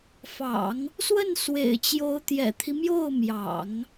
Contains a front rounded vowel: no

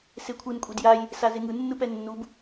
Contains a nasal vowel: no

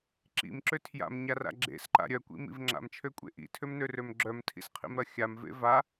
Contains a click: yes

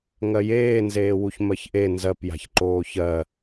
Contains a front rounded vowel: no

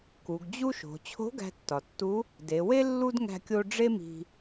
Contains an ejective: no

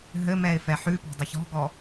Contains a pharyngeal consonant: yes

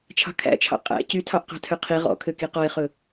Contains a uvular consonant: yes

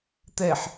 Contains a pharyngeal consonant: yes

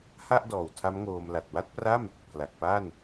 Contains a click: no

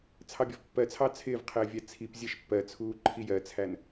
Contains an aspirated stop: yes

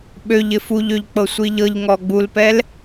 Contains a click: no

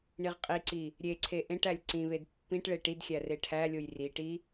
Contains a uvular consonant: yes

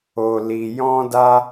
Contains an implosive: no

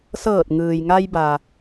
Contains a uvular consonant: no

